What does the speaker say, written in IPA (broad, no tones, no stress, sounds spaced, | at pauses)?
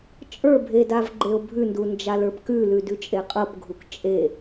t͡ʃʼ ə˞ bʱ e d a v ɡ͡ǃ e o̯ bʱ ʉ n d u n d͡ʒ a l ə˞ p k ʉ l ʉ d ʉ t͡ʃʼ e qʼ ɤ p ɡʱ u k t͡ʃʼ e